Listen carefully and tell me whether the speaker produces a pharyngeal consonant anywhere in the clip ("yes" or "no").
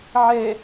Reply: yes